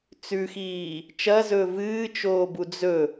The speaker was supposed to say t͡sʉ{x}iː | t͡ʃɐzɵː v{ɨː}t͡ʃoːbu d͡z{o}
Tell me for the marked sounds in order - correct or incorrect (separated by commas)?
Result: correct, correct, incorrect